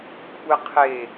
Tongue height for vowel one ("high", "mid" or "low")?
mid